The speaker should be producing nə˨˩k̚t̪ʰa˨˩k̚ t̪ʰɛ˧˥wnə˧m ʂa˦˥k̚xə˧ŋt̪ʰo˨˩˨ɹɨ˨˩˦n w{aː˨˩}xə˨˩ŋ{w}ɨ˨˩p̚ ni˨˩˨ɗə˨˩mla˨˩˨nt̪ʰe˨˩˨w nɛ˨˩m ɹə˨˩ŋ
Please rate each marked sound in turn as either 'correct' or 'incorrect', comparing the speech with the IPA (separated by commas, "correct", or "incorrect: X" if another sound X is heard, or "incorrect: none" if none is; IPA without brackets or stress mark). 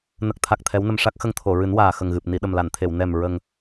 correct, incorrect: ɣ